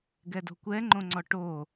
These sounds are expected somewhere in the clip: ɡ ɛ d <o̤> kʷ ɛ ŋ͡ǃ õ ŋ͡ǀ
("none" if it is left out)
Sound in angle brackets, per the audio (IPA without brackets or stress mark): o̤